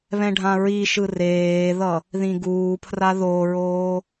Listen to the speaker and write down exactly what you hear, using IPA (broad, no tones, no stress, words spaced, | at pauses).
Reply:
βɛ̃ɖʱãɹiʃɯ reːðʌ | ðĩɡuːpʰra ðoɹoː